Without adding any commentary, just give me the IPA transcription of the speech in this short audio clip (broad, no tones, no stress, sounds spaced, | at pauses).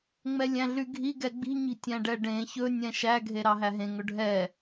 ŋ͡m ɛ lʲ æ̃ ɮ y ɡʱ i ɡ ɛ ɡ͡b i̤ ɲ i̤ tʲ æ̃ ɖ ɛ ɖ ẽ ç ɵ nʲ ɛ̃ ʃ æ ɡʱ e ɾ ɑ ɦ æ ɦ ẽ ŋ ɵ ɖʱ ɛ